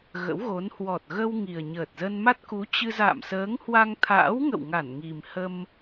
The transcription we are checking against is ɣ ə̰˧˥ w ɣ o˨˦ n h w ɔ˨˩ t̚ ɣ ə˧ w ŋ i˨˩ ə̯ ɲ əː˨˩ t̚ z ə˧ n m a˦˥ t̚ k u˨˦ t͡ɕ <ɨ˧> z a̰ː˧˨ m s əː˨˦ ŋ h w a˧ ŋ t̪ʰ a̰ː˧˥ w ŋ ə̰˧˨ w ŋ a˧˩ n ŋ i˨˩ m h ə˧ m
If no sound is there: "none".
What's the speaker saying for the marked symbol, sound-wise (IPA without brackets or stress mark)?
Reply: ɨ˧